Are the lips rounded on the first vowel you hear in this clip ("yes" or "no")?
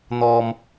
yes